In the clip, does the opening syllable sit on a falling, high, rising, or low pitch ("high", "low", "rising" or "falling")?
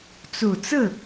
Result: low